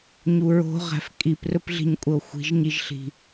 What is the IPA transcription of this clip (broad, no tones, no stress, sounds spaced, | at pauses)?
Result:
ɲ u ɹ o̤ ʁ æ̤ f kʼ i p r ɵ p ɮ i̤ ɲ kʷʼ ə o̯ xʷ i̤ ʒ ɲ i ʒ ɬ i̤